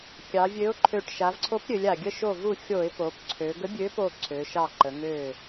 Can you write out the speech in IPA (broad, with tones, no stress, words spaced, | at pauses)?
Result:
kʲɑ˩˧vʲø˨˥ʊ̯ǃʰø˧˩ʈ ʃa˩˧vǀʰo˨˥pɾʲø˩˧lʲ a˩ɡʲə˧˩ʃo˧˩vu˧˩ xʲo˧˩˧ɪ̯po˩˧p ǀʰø˩˧ ɡə˨˥bʲø˨˥po˧˩ ǀʰø˩˧ʃɑ˧˩ ǃə˩˧ŋø˧˩